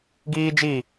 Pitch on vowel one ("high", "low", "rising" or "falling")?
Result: high